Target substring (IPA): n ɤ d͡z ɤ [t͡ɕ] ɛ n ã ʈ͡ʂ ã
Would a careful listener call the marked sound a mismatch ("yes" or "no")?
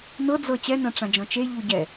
no